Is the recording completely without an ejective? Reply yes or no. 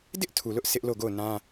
yes